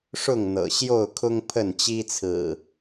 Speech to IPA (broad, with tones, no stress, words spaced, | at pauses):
ʂʊ˥˨ŋn̪ɤ̰˨˩ ɕjo˥˨ʊ̯kʰʊ˦ŋpʰə˥˨n t͡ɕi˦ t͡sʰɹ̩˨˩